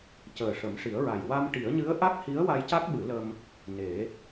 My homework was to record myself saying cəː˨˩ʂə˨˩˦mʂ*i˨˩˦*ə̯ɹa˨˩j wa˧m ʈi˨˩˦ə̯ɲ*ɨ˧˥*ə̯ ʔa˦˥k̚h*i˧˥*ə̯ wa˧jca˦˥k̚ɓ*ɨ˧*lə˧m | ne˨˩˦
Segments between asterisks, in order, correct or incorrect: correct, correct, correct, incorrect

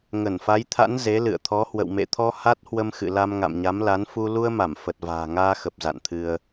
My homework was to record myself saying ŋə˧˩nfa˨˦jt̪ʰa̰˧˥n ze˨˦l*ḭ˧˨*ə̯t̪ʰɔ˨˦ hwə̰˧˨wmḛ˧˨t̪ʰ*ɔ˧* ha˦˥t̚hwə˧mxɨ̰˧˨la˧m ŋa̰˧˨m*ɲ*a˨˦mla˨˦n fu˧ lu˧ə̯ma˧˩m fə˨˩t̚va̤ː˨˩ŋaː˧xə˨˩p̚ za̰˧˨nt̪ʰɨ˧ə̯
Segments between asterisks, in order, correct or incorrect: incorrect, correct, correct

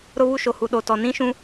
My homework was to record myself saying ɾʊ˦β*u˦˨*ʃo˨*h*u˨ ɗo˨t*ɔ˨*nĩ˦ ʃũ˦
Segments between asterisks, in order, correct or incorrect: incorrect, correct, correct

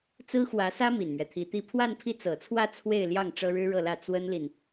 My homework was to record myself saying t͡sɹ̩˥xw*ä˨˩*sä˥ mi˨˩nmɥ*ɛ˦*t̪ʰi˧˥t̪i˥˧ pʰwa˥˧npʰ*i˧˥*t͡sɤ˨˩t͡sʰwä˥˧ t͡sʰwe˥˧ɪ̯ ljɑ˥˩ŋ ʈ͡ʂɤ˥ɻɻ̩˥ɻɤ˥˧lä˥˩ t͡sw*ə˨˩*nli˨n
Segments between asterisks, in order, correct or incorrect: incorrect, correct, incorrect, incorrect

